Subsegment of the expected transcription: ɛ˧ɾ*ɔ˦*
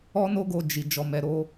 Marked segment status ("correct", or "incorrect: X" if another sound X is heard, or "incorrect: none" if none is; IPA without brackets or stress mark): incorrect: o˦